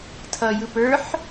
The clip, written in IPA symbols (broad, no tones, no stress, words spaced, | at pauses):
tʰʌjɯ pə˞ħ